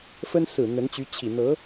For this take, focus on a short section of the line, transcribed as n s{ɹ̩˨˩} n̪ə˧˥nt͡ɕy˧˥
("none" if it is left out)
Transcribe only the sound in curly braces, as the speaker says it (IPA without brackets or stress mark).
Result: ɹ̩˨˩